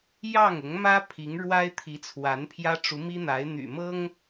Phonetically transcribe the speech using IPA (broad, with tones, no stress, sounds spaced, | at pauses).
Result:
j ɑ˥˩ ŋ ʊ˧˥ ŋ m ä˥ pʰ i˧˥ ŋ ɻ w a˥ ɪ̯ t̪ʰ i˧˥ t͡sʰ w a˧˥ n pʰ j ä˥ ʈ͡ʂ u˧˥ m i˥ n̪ a˧˥ ɪ̯ n̪ y̰˨˩ m ɤ˥ ŋ